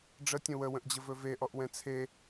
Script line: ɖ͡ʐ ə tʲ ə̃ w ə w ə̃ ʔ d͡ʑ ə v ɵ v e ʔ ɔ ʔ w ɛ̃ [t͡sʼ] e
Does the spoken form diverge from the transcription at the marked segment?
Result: yes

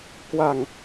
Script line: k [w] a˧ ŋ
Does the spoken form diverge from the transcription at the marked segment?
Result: no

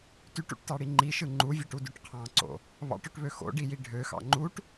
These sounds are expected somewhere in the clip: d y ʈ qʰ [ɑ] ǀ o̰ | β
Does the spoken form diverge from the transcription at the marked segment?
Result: yes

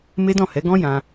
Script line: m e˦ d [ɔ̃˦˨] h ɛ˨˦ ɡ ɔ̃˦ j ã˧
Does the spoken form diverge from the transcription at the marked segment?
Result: no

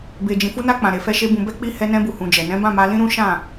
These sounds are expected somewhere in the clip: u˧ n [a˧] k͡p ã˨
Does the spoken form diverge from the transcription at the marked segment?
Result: no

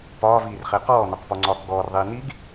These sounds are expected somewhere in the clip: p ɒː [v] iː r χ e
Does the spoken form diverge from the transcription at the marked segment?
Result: no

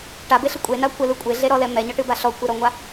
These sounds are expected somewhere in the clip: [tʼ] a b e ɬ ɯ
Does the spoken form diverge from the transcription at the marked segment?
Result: yes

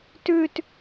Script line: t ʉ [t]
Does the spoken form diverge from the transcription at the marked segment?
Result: no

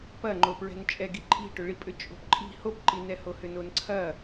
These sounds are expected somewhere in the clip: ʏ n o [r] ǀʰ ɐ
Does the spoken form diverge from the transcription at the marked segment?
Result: yes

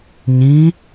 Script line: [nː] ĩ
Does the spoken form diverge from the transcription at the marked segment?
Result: yes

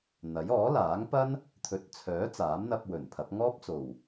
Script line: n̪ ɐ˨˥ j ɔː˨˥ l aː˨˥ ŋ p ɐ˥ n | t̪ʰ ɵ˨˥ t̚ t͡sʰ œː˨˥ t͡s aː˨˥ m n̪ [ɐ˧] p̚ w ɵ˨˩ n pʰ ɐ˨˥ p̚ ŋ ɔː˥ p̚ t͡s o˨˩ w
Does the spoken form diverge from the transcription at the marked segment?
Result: no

